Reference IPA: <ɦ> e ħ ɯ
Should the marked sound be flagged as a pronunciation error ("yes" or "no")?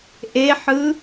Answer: yes